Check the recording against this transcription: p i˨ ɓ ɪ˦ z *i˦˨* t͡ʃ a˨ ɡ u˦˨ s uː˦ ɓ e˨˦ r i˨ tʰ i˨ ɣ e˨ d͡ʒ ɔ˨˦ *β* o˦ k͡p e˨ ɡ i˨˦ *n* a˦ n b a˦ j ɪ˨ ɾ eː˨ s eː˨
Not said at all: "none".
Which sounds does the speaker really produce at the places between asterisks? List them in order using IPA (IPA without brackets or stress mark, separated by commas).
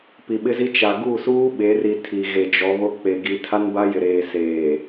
i˦, β, tʰ